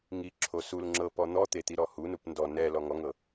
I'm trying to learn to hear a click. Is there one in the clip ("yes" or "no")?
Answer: yes